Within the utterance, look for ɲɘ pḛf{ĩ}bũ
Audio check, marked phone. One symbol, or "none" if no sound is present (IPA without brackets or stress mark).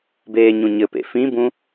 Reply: ĩ